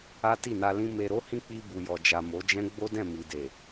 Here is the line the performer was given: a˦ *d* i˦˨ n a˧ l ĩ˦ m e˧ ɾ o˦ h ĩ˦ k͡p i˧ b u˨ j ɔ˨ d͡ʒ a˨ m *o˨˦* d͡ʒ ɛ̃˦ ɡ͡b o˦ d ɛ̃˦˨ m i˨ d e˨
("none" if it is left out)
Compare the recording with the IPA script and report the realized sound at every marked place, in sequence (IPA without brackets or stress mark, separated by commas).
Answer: t, o˨˦